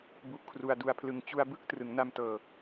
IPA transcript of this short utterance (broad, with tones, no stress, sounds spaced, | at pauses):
b u˦˥ ʔ kʰ r u˧ a̯ d u˧ a̯ pʰ l ɯ˧ ŋ t͡ɕ u˧ a̯ b ɯ˥˩ k̚ t r ɯ˩˦ ŋ n a˧ m t ɤː˨˩